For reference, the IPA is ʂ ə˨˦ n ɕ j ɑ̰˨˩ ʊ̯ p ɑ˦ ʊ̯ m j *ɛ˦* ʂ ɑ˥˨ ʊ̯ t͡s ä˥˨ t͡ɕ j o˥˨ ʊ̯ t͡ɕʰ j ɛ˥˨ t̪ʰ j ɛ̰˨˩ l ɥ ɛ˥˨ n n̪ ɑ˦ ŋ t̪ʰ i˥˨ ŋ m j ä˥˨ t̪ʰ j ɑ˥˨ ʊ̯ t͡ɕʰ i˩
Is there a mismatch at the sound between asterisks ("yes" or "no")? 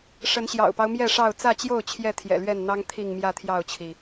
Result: yes